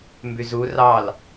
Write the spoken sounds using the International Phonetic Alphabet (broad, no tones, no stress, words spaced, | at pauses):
mbyzu rɑl